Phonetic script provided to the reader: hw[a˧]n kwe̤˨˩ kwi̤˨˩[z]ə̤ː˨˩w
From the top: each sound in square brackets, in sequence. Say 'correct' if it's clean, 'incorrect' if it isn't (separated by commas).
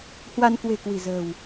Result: correct, correct